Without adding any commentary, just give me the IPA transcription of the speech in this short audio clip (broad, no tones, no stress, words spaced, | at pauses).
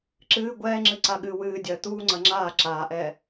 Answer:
ǁɨː ɡʷɛːŋ͡ǁɨǀaɠɨː wɨːdʲɐː t̪uːŋ͡ǀɐ ŋ͡ǁaː ǁaːʔɛː